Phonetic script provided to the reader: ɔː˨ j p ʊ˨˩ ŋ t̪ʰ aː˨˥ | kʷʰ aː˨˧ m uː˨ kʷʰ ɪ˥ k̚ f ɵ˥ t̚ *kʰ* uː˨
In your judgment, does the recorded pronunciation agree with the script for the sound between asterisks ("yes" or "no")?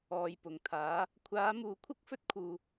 yes